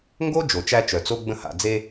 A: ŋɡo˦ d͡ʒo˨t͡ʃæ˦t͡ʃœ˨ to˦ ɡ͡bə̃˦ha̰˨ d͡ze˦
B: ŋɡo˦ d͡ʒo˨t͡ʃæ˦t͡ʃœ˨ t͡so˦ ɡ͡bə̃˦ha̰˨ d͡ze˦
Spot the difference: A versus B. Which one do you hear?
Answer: B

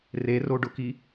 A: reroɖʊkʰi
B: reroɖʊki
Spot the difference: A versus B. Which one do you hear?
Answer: B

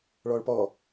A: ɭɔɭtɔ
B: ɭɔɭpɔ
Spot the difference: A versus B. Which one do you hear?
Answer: B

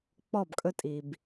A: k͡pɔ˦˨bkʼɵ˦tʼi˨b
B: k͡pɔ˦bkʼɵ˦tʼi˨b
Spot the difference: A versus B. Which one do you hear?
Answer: A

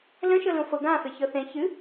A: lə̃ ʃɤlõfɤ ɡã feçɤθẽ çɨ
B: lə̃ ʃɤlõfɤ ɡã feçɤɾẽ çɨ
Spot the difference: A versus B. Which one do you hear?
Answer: A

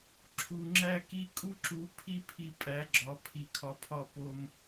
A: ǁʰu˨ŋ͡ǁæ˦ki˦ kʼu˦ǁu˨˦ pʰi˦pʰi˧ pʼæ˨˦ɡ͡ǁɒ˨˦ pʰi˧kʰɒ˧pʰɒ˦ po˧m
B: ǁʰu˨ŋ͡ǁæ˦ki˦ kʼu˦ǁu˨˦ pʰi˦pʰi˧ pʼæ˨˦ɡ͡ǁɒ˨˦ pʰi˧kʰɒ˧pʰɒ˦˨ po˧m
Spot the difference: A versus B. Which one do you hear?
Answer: B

